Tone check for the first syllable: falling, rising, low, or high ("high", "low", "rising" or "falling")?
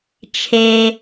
low